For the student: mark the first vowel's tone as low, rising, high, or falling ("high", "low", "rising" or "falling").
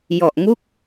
low